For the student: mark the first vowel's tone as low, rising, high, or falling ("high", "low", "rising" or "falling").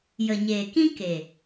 low